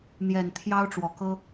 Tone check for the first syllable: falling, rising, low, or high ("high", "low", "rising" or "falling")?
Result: low